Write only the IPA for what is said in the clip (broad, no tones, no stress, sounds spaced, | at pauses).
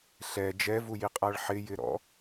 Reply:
ɬ ɛ d͡ʒ ɛ v u j i qʼ a ɭ ħ ɪ j ɪ ɾ ɔ̰